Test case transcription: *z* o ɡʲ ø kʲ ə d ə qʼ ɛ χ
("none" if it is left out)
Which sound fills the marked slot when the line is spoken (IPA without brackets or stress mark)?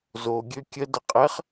z